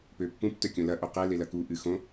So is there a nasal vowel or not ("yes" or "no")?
yes